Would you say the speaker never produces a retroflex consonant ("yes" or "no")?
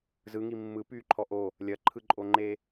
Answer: yes